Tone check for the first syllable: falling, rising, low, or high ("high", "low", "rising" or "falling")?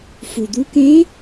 low